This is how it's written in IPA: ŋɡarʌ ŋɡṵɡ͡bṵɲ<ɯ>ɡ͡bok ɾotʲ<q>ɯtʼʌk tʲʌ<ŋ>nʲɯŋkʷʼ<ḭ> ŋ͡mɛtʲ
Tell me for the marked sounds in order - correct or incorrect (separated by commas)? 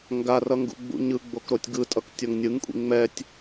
correct, incorrect, correct, correct